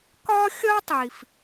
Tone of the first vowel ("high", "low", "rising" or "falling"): high